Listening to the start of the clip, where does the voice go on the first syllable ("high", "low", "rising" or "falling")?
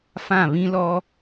falling